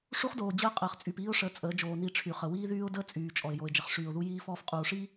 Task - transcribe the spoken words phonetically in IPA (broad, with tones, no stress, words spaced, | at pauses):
ʂu˦χdoː˨ d͡ʑəː˦qʼəː˨χ t͡sʼyː˨piː˦ʊ̯ʂəː˨ t͡sʼəː˨˦d͡ʒoː˨ ni˨ ʈ͡ʂʰy˨χə˨ wiː˦ðyː˦ʊ̯dəː˦ t͡sʼyː˨t͡ʃʼɔ˨ɪ̯ jo˨ɪ̯d͡ʒə˨χ ʂyː˨ʊ̯ðu˦ jiː˦fɔː˦f qʼuː˨ʂi˦